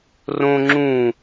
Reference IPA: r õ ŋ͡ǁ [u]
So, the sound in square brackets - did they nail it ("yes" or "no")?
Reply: no